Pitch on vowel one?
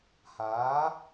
rising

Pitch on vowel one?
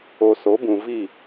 low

